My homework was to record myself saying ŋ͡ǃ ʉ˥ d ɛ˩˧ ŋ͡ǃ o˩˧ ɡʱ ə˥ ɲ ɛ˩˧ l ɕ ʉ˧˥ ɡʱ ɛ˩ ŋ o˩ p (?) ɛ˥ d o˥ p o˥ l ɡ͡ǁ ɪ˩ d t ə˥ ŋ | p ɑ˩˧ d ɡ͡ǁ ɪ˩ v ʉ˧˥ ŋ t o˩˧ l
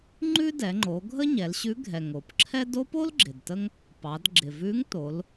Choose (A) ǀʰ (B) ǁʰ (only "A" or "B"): B